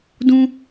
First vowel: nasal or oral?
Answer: nasal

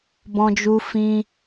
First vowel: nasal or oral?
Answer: nasal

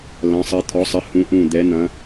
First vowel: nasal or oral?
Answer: nasal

